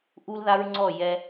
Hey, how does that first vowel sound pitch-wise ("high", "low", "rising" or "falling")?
high